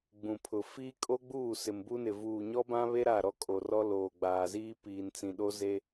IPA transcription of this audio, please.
ɡ͡b ũ˨ pʰ ʊ˨ f iː˦ kʼ o˦ ɡ͡b uː˦˨ s ɪ˨ m b u˦ n ɪ˨ v uː˨ ɲ ɔ˦ b ã˦ β e˦ ɾ a˦˨ ɾ ɔ˦ kʼ o˨ r ɔ˦ l oː˨ ɡ͡b aː˨ z iː˦ p iː˨ n t͡s ĩ˨ ɗ o˦ z e˦

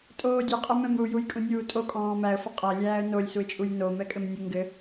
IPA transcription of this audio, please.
tʼ oː dʲ e qʼ ɘ m ɛ̃ m ɾ u j u j kʼ ũ nʲ uː tʼ o kʼ ɔ̃ː m æ ə̯ f ə qʼ æ lʲ æː ə̯ n o lʲ s u ɪ̯ t͡ʃʼ u j n o m ɛ kʼ ɘ m nʲ u ŋ ɡ ɘ

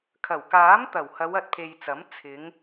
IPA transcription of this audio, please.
kʰ ɐ˨˩ w k aː˨˥ m t̪ ɐ˨˩ w h ɐ˨˧ w ɐ˨ t̚ pʰ e˨ j t͡s ɐ˨˥ m t͡sʰ ɪ˨˧ ŋ

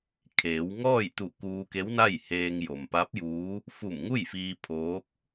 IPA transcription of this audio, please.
kʰ eː˩˧ w ŋ ɔː˥˨ j t̪ u˧˩ k uː˧ k e˧˥ w n a˥˨ j h eː˧ ŋ j o˩ m p a˧˥ p̚ j uː˧˥ | f u˧˩ m ŋ u˥˨ j f iː˧ pʰ oː˧˥ k̚

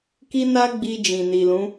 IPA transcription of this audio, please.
k i˦ n a˦ ɡ͡b i˧ d͡ʒ ĩ˨ n i˨ l ũ˨˦

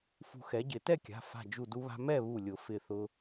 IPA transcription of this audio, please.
f ṳ˧ x ɛ˩˥ ɟ ɪ˨˩˦ t ɛ˥˨ kʲ a̤˩˧˩ f a̤˧˩ d͡ʒ u˧˩ d u˧ β a̤˧ m ɛ˥˨ β u˧˩ lʲ ʊ˨˩˦ f ɪ˧˩ θ ʊ˧

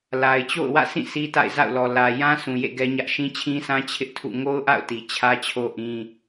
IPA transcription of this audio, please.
l a˨ ɪ̯ t͡ɕ o̰˦˨ ʊ̯ w ä̰˦˨ s ĩ˦˨ s i˦ t a̰˦˨ ɪ̯ z a̰˦˨ ʊ̯ l ɔ˨ l ä˨ j ã˦ sʰ ũ˨ j ḛ˦˨ ɡ ɛ˦ ɲ ä˦ ʔ ʃ ĩ˦ t͡ɕʰ ĩ˦ sʰ ã˦ t͡ɕʰ ɪ˦ ʔ tʰ ṵ˦˨ ŋ o˦ ʊ̯ ʔ a̰˦˨ ʊ̯ t i˨ t͡ɕʰ ä˦ t͡ɕʰ o˦ ʔ ĩ˦

